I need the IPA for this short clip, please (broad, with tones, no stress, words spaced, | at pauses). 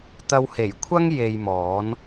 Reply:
t̪ɐ˧whe˨˩jkʷʰɐ˥ŋ je˧jmɔː˨˥n